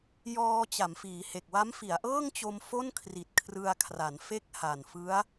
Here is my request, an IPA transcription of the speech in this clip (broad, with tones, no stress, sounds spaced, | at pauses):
j ɔː˧ t͡ɕ a˩˦ m f iː˩˦ h e˨˩ k̚ w a˦˥ m f i˩˦ a̯ ʔ ɤː˥˩ ŋ t͡ɕ o˧ m f o˥˩ n kʰ r i˨˩ t̚ kʰ r ɯ˧ a̯ kʰ r a˩˦ n f e˥˩ k̚ h a˨˩ n f ɯ˦˥ a̯